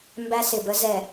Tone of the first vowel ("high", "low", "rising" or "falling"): high